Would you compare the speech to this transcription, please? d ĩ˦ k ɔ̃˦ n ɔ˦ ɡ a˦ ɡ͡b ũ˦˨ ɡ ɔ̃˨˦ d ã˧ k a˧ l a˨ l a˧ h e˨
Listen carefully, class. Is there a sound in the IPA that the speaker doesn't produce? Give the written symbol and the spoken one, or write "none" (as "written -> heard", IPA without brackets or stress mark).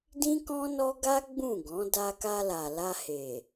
ã˧ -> a˧